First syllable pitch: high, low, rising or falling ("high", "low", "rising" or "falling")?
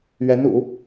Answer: rising